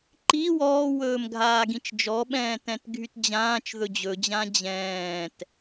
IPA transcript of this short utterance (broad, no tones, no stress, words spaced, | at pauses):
ǃi wɔːwɵːm ɡʱaːɡĩt͡ʃd͡ʒɔɓɛ̃ː tɛ̃tɡʱytd͡ʑãːt͡ʃ ðɵd͡ʑɵd͡ʑã d͡ʑɛ̃ːt